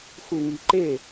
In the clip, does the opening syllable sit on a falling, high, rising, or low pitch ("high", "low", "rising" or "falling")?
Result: low